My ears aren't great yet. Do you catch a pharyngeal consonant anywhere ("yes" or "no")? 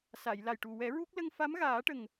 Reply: no